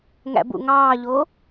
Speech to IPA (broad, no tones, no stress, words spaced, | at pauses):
ŋæ̰bṵŋɑːʎo